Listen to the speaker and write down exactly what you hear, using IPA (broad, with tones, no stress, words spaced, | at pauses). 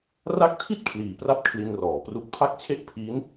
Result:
ra˦˥k̚tʰi˥˩t̚ kʰliː˨˩pra˥˩p̚ kʰli˧nrɔː˩˦pru˦˥k̚ pʰa˥˩k̚t͡ɕʰe˥˩ʔ pʰiː˦˥n